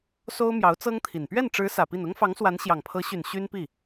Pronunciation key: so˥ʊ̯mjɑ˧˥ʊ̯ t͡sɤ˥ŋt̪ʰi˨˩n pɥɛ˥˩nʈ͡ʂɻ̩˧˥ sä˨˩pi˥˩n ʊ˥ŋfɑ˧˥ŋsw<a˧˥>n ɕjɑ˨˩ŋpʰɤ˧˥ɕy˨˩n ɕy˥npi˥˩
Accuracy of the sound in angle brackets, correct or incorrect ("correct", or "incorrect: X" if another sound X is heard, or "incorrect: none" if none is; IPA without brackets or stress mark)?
correct